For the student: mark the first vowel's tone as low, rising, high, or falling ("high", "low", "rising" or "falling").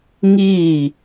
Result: falling